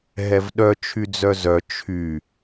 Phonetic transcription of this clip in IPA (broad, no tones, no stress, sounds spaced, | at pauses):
ɦ ɛ v ɗ œ t͡ʃʰ y d͡z œ z œ t͡ʃʰ y